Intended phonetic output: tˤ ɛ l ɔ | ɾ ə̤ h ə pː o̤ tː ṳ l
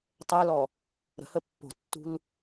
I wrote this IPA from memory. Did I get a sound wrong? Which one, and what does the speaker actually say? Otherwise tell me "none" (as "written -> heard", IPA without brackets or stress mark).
none